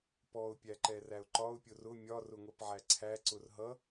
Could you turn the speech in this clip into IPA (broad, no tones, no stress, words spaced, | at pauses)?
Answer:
pɔʊ̯pʲæǃɛræʊ̯ ǃɒʊ̯pʲʊr ʊ mʲɒrʊŋʷɛpʕæ ǀʰæǀʊr ɦʌ